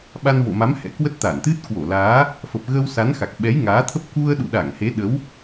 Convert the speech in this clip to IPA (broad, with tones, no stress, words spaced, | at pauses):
ɓa˧nvo̰˧˨ma˨˦m hɛ̰˧˥kwə˦˥t̚ t̪a˧˩nt̪ɨ˦˥t̚ kwo˧˩laː˨˦ | fə˨˩p̚ɣə˧w sa˨˦nxa˨˩k̚ ɓɛ˨˦jŋaː˨˦t̪ʰə˦˥p̚ ku˧ə̯ɗṵ˧˨ɗa˧˩ŋ he˨˦ɗə˨˦w